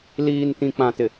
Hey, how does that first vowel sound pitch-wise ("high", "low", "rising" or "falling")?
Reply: low